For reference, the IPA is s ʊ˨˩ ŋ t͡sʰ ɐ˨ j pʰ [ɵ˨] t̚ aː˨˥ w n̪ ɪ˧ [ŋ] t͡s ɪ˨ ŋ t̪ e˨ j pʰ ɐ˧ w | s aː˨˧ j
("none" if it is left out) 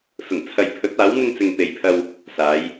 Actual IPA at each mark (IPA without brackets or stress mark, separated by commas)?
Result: ɵ˨˥, ŋ